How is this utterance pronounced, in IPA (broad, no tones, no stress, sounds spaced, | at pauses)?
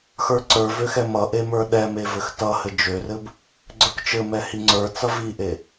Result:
x ə˞ ǀ ə˞ v ø x ɛ m ʌ ʔ e m ə˞ ɗ ɛ m e v ɘ x t ʌ h ɘ d͡ʒ ø r ɘ b | ɡ͡ǀ ə˞ k t͡ʃ ɘ m ɛ h i ŋ͡ǀ ə˞ t͡s ʌ v i ʔ e